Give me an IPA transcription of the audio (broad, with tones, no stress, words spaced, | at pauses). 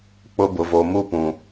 k͡pʊ˦ bʊ˨vo˨ mu˦pũ˨